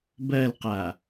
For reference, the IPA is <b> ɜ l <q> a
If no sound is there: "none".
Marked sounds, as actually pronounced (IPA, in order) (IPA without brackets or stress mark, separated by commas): b, q